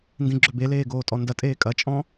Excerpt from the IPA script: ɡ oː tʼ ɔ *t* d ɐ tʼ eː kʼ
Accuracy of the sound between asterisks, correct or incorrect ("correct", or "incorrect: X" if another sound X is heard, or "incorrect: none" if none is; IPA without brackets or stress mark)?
incorrect: n